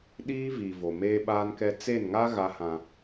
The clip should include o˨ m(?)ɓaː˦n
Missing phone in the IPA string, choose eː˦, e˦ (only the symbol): eː˦